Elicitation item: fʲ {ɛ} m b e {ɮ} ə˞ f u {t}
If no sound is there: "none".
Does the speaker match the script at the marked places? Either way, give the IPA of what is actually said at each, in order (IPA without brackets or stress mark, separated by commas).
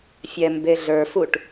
ɛ, ɮ, ʈ